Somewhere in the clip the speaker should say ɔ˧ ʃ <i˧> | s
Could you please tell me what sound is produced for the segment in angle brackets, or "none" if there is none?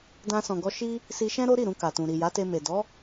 i˧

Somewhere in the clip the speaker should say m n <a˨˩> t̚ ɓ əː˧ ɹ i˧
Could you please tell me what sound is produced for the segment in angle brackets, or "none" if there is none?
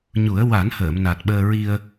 a˨˩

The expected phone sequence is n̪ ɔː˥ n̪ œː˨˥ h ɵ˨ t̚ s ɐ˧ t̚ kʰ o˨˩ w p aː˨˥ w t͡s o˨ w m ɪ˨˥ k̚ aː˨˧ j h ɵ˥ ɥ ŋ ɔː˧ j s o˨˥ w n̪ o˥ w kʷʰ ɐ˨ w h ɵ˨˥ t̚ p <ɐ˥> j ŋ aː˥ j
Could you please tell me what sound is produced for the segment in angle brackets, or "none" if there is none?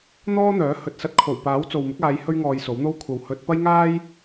ɐ˥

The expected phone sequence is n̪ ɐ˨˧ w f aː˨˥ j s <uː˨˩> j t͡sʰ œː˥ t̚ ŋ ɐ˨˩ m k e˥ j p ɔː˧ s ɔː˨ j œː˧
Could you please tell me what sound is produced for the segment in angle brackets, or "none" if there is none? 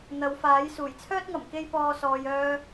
uː˨˩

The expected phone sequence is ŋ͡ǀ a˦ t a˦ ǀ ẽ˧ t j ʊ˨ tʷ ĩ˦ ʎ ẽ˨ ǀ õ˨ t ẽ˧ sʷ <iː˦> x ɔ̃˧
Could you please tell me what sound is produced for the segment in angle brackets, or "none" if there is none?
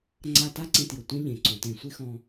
i˦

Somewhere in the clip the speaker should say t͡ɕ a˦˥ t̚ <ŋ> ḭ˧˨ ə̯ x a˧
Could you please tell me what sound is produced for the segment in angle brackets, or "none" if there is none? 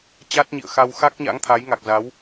ɲ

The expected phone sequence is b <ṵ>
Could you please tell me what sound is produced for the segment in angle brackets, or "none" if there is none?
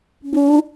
u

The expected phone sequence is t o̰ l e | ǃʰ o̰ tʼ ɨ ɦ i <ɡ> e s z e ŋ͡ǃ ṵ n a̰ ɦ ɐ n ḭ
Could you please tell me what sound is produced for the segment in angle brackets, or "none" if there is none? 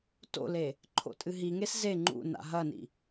ŋ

